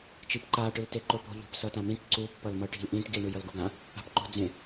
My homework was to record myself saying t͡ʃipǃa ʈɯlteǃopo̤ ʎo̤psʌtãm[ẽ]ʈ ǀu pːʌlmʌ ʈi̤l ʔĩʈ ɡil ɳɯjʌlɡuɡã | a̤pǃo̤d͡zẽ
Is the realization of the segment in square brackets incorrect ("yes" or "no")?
yes